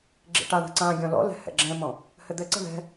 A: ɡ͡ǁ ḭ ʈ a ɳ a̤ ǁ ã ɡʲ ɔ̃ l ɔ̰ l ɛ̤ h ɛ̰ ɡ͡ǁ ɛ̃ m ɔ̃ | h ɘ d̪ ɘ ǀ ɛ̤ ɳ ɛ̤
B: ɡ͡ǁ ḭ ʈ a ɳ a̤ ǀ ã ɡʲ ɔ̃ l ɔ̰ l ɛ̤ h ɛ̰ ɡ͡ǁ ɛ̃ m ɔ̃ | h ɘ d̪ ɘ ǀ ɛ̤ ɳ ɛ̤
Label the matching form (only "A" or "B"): B